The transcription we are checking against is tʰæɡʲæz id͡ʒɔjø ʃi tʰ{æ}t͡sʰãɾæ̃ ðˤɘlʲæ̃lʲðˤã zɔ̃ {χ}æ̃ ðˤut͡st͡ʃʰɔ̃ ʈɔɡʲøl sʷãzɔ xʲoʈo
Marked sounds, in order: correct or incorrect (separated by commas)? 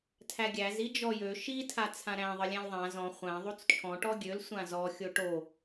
incorrect, incorrect